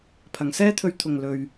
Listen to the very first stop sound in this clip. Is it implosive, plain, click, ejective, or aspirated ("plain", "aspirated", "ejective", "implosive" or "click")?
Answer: aspirated